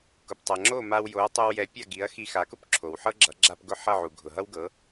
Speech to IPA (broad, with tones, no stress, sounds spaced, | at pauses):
k ʊ˩ p tˤ ʌ˩ ŋ͡ǁ o˥˩ m a˧ w j o˩˥ ɐ̯ tˤ o˧ w j ɛ˩˥ pʲ a˥˩ ɡ i˩˥ ɐ̯ x i˧ x a˩˥ k ʊ˥ p ǁʰ o˩ w ħ ɤ˥ ɡ͡ǁ ʌ˩˥ ɡ͡ǁ a˧ p ɡ ʊ˥˩ ħ ʌ˥˩ ʕ u˩ ɡʱ ʊ˩ ɦ ʌ˥ w ɡ ɤ˩˥